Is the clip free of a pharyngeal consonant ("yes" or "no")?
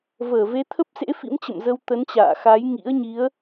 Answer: yes